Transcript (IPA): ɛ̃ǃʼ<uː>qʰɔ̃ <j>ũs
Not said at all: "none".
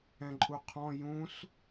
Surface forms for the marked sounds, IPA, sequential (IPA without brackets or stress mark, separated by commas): u, j